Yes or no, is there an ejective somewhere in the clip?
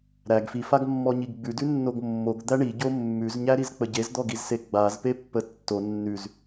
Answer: no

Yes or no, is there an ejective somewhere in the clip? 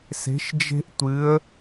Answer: no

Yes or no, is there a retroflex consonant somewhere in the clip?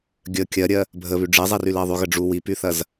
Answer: yes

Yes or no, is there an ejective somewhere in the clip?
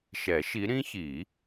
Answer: no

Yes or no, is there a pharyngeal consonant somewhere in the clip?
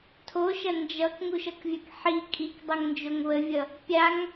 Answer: yes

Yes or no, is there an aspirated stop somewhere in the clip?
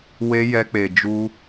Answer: no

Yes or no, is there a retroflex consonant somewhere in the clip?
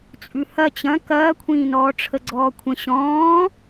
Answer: yes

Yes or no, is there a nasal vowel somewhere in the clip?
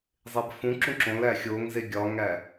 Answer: yes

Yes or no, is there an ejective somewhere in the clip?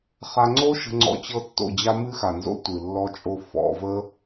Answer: yes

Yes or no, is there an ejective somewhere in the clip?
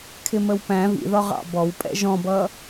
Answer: yes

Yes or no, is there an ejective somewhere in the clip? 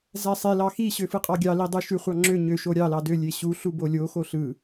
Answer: yes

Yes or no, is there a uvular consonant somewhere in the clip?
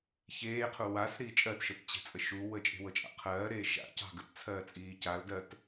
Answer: yes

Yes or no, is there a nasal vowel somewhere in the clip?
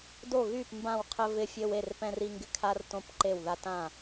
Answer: yes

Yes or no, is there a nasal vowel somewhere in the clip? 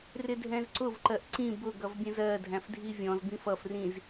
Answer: yes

